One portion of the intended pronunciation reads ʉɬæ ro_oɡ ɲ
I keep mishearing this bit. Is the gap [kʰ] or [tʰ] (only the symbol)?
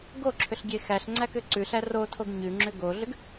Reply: tʰ